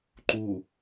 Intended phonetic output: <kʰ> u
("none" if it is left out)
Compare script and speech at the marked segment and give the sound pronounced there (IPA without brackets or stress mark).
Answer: ǃ